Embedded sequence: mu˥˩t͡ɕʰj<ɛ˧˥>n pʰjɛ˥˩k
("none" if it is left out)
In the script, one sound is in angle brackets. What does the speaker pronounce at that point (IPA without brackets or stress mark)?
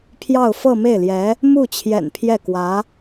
ɛ̰˨˩